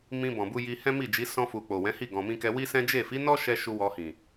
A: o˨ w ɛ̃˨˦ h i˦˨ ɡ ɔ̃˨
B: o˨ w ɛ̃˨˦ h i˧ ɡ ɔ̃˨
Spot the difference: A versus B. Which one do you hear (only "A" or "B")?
A